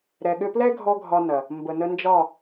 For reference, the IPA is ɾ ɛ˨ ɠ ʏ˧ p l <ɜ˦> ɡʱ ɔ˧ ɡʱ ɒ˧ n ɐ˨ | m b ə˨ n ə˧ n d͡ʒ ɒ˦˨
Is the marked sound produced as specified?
no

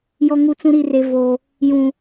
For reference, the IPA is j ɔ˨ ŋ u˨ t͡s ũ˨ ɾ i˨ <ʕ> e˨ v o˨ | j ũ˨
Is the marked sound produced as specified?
no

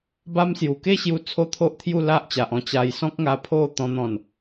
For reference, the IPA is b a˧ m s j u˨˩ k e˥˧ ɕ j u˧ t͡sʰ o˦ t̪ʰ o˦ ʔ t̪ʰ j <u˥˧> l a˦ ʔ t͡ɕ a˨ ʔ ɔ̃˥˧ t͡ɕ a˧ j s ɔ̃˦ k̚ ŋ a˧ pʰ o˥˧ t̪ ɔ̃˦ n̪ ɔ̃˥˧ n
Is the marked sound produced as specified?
yes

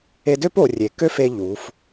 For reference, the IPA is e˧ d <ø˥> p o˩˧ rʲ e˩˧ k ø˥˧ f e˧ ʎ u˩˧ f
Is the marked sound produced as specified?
yes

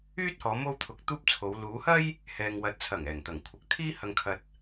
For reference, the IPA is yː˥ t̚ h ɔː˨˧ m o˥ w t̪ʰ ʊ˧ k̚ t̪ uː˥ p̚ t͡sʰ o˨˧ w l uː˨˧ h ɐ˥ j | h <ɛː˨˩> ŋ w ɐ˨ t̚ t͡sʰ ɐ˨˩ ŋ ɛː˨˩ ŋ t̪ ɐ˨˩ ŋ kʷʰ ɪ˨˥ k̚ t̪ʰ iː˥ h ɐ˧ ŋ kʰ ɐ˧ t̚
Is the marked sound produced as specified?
no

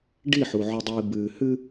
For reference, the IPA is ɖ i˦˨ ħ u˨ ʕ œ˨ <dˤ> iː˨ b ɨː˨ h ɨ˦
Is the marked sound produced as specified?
yes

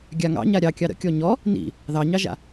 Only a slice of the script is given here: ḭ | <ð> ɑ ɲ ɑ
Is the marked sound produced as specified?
yes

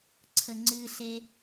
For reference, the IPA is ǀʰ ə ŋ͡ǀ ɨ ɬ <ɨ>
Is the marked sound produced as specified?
no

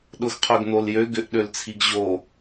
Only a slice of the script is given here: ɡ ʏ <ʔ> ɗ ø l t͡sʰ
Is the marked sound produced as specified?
yes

